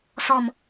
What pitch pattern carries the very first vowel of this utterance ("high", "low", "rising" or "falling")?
low